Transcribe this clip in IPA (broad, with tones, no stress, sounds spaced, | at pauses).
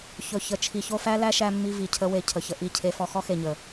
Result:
ç ɵ˨ ç ə˨ t͡ʃʰ i˨ ç o˧ f æ˦ l æ˦ ʃ æ˧ mː i˧ v i˨ cʰ ə˦ w e˧ cʰ ə˨ ç ə˧ ʔ i˦˨ cʰ e˦ f ɔ˦ x ɔ˦ x e˨ ɲ ə˨